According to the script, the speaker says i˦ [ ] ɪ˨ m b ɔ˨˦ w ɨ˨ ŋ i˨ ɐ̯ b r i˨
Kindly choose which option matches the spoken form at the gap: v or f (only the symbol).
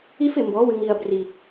f